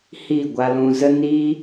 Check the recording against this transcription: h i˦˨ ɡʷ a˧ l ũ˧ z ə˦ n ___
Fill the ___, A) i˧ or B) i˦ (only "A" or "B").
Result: A